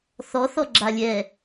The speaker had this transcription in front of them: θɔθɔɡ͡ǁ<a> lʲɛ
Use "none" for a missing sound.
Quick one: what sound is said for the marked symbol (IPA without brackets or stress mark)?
a